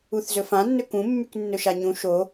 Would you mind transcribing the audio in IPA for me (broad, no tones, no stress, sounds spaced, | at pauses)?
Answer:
u θ z ɵ f ã nː ɵ k ũ mː y k nː ɵ ʃ a ɲ ũ ʃ o